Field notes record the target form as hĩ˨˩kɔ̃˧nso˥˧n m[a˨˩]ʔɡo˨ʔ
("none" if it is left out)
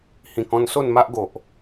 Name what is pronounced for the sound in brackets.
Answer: a˦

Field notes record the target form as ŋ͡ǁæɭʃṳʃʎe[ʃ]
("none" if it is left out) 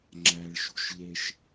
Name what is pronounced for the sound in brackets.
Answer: ʃ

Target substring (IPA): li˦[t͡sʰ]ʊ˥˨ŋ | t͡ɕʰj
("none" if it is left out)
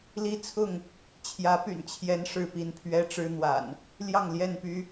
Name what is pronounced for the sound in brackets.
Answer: t͡sʰ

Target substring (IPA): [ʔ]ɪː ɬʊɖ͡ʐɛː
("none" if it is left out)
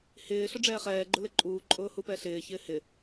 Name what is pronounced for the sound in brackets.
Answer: h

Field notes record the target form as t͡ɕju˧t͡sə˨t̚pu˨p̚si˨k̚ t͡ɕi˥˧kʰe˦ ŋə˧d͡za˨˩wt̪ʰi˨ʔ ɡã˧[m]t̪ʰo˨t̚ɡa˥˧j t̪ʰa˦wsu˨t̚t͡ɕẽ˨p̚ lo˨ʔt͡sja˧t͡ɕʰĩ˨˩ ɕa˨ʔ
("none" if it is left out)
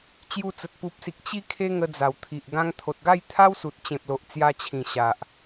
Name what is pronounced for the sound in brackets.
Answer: ŋ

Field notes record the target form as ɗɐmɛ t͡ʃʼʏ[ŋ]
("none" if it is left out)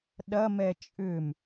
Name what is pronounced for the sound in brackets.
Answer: m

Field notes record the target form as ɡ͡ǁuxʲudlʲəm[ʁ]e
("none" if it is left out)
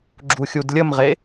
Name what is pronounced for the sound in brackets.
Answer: ʁ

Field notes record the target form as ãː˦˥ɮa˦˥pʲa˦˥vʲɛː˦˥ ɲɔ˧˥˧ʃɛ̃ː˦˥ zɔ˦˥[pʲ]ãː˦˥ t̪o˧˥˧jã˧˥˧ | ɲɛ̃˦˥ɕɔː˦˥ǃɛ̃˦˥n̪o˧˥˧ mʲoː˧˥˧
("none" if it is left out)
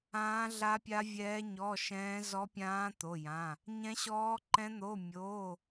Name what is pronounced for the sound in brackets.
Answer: pʲ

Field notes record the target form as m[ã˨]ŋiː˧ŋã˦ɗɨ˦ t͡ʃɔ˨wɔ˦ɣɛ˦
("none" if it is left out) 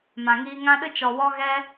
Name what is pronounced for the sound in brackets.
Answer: ã˨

